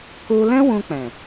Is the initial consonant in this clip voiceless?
yes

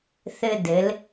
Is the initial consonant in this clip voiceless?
yes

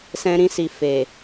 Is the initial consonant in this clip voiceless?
yes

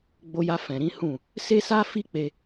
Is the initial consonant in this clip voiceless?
no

